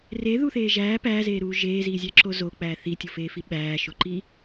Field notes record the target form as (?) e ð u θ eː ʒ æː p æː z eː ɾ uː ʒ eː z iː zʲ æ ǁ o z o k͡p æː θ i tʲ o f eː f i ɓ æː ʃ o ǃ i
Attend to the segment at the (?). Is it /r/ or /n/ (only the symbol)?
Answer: r